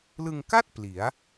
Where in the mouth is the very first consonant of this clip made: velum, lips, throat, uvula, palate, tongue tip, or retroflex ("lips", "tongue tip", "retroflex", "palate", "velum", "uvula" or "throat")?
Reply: tongue tip